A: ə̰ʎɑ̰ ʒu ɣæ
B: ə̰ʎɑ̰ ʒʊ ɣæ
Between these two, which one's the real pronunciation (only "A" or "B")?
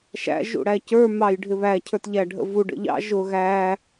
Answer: B